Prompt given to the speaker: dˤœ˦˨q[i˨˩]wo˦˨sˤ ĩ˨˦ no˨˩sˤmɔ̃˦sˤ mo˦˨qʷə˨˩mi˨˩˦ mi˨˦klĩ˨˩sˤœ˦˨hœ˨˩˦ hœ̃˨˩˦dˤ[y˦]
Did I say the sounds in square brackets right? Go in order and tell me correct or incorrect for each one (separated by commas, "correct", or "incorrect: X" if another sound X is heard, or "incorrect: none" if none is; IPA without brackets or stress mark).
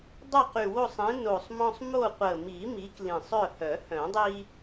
incorrect: y˨˩, incorrect: i˦